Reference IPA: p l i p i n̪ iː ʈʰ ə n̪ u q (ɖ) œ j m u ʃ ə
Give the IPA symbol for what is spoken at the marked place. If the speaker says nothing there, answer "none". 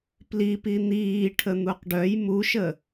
ɖ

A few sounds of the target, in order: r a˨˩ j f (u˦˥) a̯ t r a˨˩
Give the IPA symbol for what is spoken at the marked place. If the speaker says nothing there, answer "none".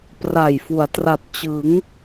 u˩˦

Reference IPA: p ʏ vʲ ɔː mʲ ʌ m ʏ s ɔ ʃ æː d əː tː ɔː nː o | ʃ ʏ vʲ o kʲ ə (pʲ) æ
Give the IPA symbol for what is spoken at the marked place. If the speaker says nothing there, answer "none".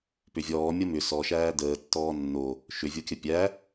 pʲ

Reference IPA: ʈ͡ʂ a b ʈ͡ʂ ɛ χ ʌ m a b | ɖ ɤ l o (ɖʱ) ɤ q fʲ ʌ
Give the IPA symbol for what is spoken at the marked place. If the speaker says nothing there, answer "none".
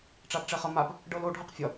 ɖʱ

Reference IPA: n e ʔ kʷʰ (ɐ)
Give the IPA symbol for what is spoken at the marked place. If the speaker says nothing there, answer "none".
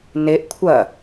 ɐ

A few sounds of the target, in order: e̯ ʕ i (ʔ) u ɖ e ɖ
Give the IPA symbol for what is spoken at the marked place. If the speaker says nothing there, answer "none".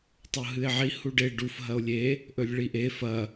h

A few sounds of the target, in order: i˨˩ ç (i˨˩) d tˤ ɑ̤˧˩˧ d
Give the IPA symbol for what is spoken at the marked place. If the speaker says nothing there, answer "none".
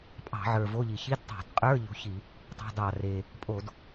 i˧˥˧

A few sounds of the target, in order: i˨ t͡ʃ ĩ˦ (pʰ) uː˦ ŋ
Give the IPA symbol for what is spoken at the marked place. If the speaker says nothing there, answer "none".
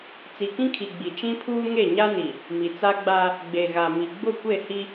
pʰ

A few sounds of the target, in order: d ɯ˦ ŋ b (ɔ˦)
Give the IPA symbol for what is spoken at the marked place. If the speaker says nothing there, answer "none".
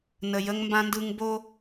o˦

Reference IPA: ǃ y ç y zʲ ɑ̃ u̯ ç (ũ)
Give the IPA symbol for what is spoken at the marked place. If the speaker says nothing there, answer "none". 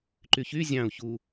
u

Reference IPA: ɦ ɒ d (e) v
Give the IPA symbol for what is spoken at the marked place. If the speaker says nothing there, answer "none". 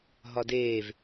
eː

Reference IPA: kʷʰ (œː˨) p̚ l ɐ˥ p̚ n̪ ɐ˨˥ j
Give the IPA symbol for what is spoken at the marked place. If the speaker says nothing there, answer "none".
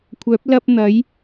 œː˨˥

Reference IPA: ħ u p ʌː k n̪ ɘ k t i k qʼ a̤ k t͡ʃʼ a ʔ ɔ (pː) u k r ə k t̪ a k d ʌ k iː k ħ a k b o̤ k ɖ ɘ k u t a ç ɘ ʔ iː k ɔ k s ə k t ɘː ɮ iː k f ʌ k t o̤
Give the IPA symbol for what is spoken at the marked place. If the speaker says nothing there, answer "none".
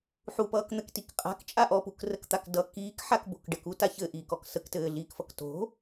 p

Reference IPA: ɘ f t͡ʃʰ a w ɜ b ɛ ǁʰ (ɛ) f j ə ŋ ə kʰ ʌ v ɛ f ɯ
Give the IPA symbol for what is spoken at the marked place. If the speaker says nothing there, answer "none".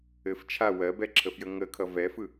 ə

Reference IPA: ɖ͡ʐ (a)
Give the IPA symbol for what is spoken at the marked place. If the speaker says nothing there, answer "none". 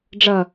ʌ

